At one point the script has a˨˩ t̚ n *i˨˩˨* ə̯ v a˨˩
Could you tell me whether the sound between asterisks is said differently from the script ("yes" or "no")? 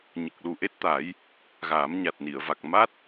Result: no